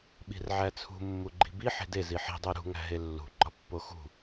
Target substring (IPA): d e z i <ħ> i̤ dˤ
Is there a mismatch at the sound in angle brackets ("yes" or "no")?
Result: no